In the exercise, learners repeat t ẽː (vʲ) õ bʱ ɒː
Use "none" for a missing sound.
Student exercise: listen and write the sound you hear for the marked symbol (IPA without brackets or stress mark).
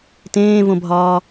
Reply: v